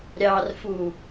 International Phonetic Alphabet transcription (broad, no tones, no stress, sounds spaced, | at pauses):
ɾʲ ɑ r f u